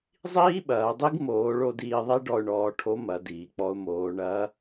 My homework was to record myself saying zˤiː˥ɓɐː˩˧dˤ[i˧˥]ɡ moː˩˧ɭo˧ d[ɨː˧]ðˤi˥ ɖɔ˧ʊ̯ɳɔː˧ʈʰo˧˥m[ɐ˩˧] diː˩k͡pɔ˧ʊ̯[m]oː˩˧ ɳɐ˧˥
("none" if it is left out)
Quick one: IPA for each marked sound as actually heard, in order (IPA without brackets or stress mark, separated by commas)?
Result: i˥, iː˧, ɐ˩˧, m